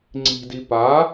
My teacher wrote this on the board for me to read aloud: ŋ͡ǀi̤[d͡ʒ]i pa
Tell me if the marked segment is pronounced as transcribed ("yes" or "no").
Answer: no